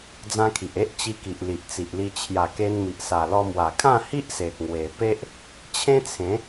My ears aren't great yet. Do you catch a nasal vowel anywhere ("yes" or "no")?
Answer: yes